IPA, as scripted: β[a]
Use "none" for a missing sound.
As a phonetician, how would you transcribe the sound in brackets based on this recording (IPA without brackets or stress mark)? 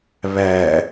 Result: æ